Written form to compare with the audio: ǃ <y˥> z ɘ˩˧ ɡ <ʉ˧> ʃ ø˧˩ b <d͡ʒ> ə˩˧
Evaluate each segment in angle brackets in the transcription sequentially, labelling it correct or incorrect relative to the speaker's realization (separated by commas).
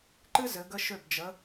incorrect, incorrect, correct